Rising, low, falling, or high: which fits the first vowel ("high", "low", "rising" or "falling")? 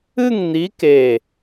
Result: falling